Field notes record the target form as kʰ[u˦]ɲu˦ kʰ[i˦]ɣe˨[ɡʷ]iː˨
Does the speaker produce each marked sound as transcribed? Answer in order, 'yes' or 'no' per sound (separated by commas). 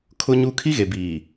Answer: no, yes, no